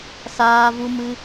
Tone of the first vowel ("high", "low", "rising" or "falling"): high